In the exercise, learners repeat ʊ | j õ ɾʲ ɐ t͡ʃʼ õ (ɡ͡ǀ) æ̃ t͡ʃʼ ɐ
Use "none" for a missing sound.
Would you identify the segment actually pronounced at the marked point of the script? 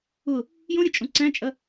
ǀ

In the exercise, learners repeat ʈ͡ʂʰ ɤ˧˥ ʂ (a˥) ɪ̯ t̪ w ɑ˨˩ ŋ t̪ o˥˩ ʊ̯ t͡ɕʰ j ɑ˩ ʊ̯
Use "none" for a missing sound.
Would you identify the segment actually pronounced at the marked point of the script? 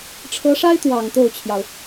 a˥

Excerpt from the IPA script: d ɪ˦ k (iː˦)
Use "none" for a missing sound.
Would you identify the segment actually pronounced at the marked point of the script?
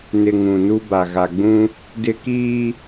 iː˦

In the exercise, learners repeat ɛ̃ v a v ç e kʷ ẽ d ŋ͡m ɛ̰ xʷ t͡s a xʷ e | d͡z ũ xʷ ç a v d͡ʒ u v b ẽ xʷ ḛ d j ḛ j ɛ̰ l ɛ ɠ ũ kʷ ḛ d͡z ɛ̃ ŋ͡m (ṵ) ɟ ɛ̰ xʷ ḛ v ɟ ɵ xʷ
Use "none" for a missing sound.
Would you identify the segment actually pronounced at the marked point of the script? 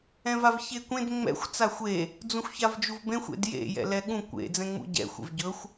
ṵ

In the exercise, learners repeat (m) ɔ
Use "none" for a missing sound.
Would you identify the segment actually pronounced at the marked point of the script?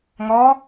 ŋ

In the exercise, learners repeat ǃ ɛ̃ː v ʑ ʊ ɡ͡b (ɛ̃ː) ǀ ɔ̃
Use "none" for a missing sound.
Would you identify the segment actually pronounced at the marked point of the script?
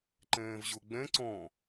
ɛ̃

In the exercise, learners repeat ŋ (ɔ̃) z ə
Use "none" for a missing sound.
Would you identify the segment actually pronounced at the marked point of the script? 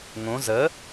õ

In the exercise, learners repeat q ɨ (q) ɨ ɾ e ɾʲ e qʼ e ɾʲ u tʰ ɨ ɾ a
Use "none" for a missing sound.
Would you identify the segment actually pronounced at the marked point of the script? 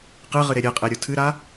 ʁ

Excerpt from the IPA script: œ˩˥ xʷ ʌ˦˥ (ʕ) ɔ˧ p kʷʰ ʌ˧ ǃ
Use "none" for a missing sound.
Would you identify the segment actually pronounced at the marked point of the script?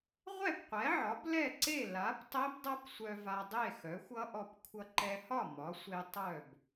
ʔ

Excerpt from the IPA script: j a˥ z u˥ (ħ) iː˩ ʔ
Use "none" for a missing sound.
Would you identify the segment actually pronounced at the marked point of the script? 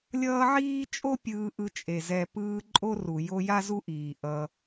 ʔ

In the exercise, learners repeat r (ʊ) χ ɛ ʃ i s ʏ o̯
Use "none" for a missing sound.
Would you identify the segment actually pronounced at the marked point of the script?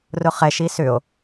ʊ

